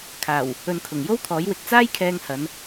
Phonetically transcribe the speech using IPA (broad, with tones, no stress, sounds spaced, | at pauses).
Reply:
kʰ aː˨˩ w | ɵ˨ n kʰ ʊ˨˩ ŋ j o˥ w t̪ʰ ɔː˨˥ j w ɪ˧ k̚ t͡s aː˥ j kʰ ɛː˧ ŋ h ɐ˨˧ n